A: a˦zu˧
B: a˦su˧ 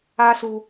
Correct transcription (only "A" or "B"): B